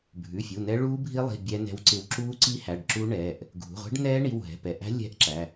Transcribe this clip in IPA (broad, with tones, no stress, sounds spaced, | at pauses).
bʱ ʉ˩˧˩ fʲ u˩˧˩ n ɛ˦˥ ɭ uː˦˥ bʱ i˦˥ lˠ i̤˩˧˩ bʲ ɛ˦˥ n ɛ̤˦˥ w ǀ ɪ˦˥ w ǁ uː˦˥ ǀ i˦˥ h æ˩˧˩ ɖ ǁ u˦˥ ɳ ɛː˩˧˩ ʔ | ɡʱ ṳ˩˧˩ ʁʷ ɛ̤˦˥ ɖ n ɛː˦˥ ɳ i˩˧˩ w ɦ ɛ̤˩˧˩ p ɛ˩˧˩ ʔ æ̤˦˥ lʲ ɛ̤˦˥ ʔ ǁ æ˩˧˩